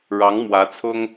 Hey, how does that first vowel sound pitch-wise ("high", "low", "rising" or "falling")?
rising